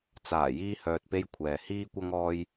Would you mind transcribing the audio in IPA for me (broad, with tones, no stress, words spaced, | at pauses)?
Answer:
t͡saː˨˩ jiː˧hœː˨t̚pe˧j kʷʰɛː˨ hiː˧kʷɐ˧ŋɔː˧j